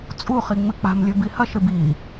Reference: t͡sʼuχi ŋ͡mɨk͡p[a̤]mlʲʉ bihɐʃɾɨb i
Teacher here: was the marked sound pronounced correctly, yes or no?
yes